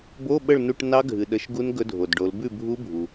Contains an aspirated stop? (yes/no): no